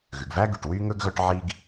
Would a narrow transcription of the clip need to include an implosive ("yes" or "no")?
no